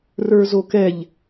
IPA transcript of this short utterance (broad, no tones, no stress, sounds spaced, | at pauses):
r ə˞ z o k ɛ ʎ